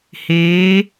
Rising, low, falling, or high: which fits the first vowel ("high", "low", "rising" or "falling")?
rising